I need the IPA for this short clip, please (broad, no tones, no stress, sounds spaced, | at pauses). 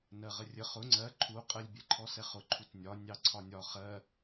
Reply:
n ɜ ʁ ə rʲ ə χ ʊ ŋ͡ǀ ɜ ǃʰ u qʼ ə lʲ bʲ ɛ ǃʰ ɔ s ɛ χ ʊ ǃʰ u t nʲ ɒ nʲ ɑ ǀʰ ɒ nʲ ɒ χ ɜ